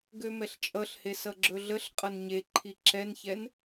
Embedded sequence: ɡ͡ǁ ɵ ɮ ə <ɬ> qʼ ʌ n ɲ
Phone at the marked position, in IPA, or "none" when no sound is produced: ɬ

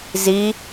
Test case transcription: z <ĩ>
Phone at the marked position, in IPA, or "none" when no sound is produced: i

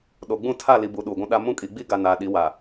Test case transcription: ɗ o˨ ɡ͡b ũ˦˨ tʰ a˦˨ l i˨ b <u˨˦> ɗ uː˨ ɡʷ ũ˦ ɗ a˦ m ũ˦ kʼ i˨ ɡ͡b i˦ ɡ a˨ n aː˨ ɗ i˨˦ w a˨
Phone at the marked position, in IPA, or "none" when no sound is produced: u˨˦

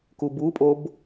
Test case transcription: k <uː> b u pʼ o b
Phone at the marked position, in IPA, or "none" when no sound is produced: u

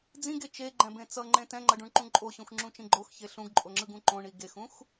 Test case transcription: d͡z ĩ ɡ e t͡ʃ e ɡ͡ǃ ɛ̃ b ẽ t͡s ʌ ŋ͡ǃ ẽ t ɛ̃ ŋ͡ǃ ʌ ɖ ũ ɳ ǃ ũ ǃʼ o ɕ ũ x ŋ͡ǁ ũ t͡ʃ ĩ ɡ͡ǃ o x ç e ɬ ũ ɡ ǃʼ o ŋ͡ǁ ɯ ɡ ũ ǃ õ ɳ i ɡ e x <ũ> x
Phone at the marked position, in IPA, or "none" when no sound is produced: ũ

